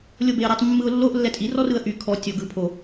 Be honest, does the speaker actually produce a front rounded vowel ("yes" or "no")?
yes